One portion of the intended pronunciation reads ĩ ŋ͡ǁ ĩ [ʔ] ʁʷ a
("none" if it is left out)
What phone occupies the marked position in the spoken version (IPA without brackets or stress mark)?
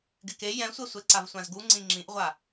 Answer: ʔ